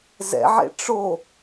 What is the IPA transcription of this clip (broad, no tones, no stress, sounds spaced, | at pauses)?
z ɛ̰ ʕ ḛ ʈ͡ʂ o